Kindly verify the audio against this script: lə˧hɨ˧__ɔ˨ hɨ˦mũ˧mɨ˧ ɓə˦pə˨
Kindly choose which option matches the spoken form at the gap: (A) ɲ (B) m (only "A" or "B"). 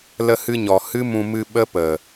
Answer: A